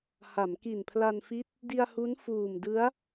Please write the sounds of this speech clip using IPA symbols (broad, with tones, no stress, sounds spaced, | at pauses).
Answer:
h a˩˦ m k i˨˩ n pʰ l a˧ n f i˦˥ t̚ | d i˧ a̯ h u˦˥ n f uː˨˩ m d ɯ˦˥ a̯